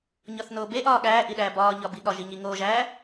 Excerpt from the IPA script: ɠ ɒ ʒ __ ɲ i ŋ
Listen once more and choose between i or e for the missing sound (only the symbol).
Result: i